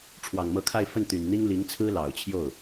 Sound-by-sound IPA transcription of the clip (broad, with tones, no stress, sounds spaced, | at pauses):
ʈ͡ʂʰ w ɑ˨˩ ŋ m ɤ˧˥ kʰ a˥˧ ɪ̯ f ə˥˩ n t̪ y˨˩ n n̪ i˥ ŋ l i˧˥ ŋ t͡sʰ ɹ̩˥ l ɑ˨˩ ʊ̯ t͡ɕʰ j o˥˩ ʊ̯